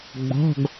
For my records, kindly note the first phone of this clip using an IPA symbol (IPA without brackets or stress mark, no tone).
ɡ͡b